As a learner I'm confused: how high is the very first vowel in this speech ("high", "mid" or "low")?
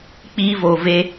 high